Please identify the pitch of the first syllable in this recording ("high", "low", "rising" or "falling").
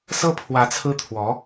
high